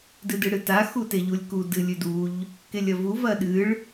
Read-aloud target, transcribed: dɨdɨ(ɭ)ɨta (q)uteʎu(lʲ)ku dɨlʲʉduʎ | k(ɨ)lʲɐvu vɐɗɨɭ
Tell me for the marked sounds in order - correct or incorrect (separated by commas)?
incorrect, incorrect, correct, incorrect